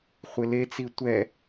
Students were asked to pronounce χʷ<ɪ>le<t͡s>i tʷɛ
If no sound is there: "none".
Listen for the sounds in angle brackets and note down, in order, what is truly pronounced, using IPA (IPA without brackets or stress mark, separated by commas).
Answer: ɪ, t͡s